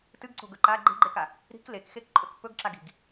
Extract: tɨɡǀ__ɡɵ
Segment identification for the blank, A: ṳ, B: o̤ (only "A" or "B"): B